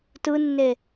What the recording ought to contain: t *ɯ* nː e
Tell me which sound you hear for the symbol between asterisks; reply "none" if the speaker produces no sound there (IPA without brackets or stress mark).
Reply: ɯ